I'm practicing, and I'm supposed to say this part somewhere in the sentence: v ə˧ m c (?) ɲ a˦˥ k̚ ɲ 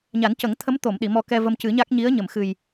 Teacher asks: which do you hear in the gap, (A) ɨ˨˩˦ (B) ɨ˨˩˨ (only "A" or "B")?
A